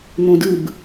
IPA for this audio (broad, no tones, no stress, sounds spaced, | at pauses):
n̪ õ d ɯ b